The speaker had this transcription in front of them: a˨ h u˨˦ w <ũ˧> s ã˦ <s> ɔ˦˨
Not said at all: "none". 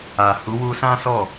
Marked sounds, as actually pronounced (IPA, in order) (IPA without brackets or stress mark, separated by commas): u˧, s